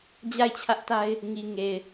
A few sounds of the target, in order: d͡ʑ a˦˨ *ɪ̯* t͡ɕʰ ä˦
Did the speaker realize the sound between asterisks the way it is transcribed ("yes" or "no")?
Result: yes